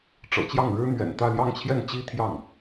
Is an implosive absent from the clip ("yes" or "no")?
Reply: yes